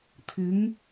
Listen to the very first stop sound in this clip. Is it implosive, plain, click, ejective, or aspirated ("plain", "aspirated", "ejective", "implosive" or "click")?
aspirated